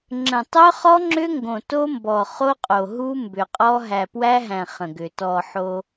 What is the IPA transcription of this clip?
ŋ͡ǁ ə̃˨ tˤ œ˦ χ ɔ˦ ŋ͡ǁ ʏ˦ ŋ ɡ õ˨ t o˦ m b ɔ˨ χ o˦ qʼ o˨ ɦ u˦ m b ʏ˨ qʼ ɔ˦ ɦ æ˨ p w æ˦ ɦ æ̃˨ χ ə̃˨ ɡ ʏ˨ t ɔ˨ ħ o˦

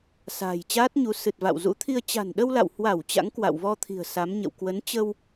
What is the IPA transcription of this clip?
s a̤ː˨˩ j t͡ɕ aː˦˥ t̚ ɲ u˨˦ s ɨ˨˩ t̚ v a̰˧˨ w z ṵ˧˥ t̪ʰ i˧ ə̯ t͡ɕ a̤˨˩ n ɗ ə˧ w l a̰˧˨ w h w a˧˩ w t͡ɕ a̰˧˥ ŋ k w a̰˧˨ w v ɔ˧ t̪ʰ i̤˨˩ ə̯ s a˨˦ m ɲ ə̰˧˨ w k w ə˨˦ n t͡ɕ ə˧ w

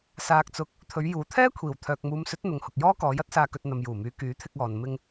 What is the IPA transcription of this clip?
s aː˧ k̚ t͡s ʊ˧ k̚ | t̪ʰ ɵ˨˧ ɥ j uː˨ t̪ʰ ɛː˥ kʷʰ iː˨˩ w t̪ʰ œː˨ k̚ m uː˨˧ m s ɵ˨˥ t̚ n̪ ʊ˨ ŋ h ʊ˨ k̚ j ɔː˥ k ɔː˨˧ j ɐ˥ t̚ s aː˧ k ɵ˧ t̚ n̪ ɐ˨ m j uː˨˩ m yː˨˧ k yː˨˥ t̪ʰ ɪ˧ k̚ ɔː˨ n m ɪ˧ ŋ

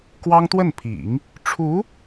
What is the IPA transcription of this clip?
k w ɑ˥ ŋ t̪ w ə˥˩ n pʰ ḭ˨˩˦ ŋ | ʈ͡ʂʰ u˧˥

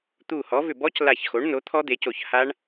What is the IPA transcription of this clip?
t̪ u˧˩ h ɔ˩˥ v ʏ˧˩ b ɔ˦˥ c l a˧˩ ç x o˩˥ ɳ n o˩˥ t̪ʰ ɔ˦˥ d̪ e˩˥ c o˧˩ ç h a˦˥ ɳ

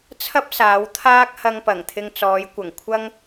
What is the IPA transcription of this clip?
t͡sʰ ɐ˥ p̚ s aː˨˧ w t̪ʰ aː˥ k̚ h ɐ˧ ŋ p ɐ˨˩ ŋ t̪ʰ ɪ˧ ŋ t͡s ɔː˨˧ j kʷ ɐ˨˩ ŋ kʷʰ ɐ˥ ŋ

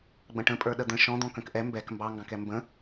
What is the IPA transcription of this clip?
ɡ͡b ə̃ ʈ ə̃ pʼ ə˞ ɗ ə d̪ ə̃ ʃ ɔ̃ d̪ ɔ̃ k ə̃ k ʔ ɛ m b ɛ k m b ɑ ŋ ɡ ɑ̃ k ɛ m b ə̃

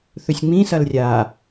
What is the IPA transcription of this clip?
θ ɵ sʲ ŋ͡m ĩ s ɐ l rʲ aː

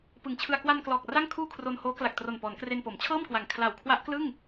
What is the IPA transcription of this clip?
p ɯ˨˩ ŋ t͡ɕʰ ɯ˧ a̯ k w a˧ n k l ɔː˨˩ k̚ r a˥˩ ŋ kʰ uː˥˩ kʰ r o˧ n h oː˦˥ k l a˨˩ k̚ t r o˨˩ n p ɔː˩˦ n k r e˧ n p o˩˦ m t͡ɕʰ ɤː˥˩ m k w a˨˩ ŋ kʰ l a˨˩ w kʰ w a˦˥ ʔ k l ɯ˥˩ ŋ

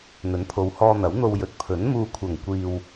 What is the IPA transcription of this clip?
n̪ ɵ˨˥ n pʰ o˨˧ w h ɔː˧ n̪ ɐ˨˥ w n̪ o˧ w j ɵ˨ t̚ pʰ ɵ˨˥ n m uː˨ kʷʰ ɐ˨˩ ŋ kʷ iː˨ w

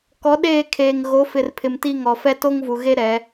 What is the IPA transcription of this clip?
k ɔ˨˦ ɗ eː˦˨ kʰ eː˨ ŋ ɣ o˨˦ f ɪ˨ r pʰ ɪ˨ m t i˦ ŋ ɔ˨ f ɛ˦ t o˦ ŋ v u˨ ɣ e˦ ɾ ɛ˨˦

